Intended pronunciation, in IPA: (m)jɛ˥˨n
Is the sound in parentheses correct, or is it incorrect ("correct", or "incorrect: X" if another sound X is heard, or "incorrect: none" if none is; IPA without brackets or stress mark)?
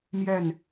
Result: correct